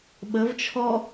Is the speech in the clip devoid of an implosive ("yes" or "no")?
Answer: no